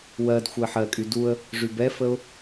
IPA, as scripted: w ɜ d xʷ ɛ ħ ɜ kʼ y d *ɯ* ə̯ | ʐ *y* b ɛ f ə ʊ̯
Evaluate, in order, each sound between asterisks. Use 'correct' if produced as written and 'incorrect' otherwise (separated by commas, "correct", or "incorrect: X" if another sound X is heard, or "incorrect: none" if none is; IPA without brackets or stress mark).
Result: incorrect: u, correct